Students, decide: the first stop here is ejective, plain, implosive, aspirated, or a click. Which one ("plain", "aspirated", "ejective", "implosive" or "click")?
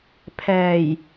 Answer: aspirated